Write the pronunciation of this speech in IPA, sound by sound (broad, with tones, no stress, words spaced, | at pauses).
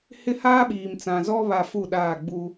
hɪ˦haː˦ɓiː˨mt͡sã˨ zɔ˦βa˨ fu˦˨ɗaː˦˨ɡ͡bu˦